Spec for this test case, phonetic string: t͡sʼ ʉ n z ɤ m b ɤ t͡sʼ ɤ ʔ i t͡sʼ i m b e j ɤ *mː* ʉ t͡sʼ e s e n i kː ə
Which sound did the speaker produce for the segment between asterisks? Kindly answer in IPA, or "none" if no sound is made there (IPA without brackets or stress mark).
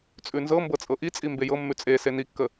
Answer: mː